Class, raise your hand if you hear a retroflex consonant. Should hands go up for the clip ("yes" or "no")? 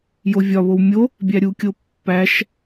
no